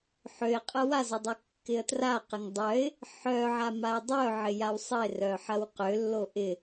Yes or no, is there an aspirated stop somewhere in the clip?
no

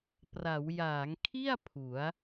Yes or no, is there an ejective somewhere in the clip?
no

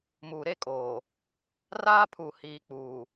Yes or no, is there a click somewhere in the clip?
no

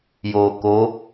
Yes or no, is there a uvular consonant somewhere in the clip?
no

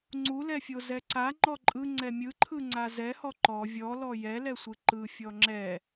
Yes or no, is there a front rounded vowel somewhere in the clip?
no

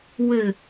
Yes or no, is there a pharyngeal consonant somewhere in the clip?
no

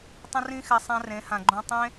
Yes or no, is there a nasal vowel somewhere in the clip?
yes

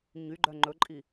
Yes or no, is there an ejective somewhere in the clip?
yes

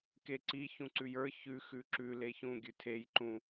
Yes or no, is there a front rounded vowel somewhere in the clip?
no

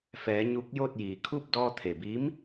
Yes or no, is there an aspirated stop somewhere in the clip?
yes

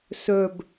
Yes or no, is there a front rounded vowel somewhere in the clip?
yes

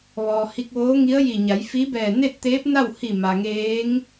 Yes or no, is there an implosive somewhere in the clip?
no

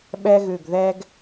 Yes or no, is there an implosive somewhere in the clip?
yes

